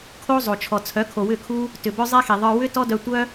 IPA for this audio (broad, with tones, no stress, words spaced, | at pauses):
kʰo˧ zˤo˨t͡ʃʰɔ˨t͡sʰœ˨˦ kʰo˨wʏ˦˨kʰu˦ | tʏ˨bœ˦ zˤe˦xi˨ðˤə˞˧ wʏ˦ tɔ˦dœ˧ tʷœ˦